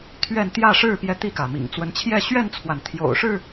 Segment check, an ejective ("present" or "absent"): absent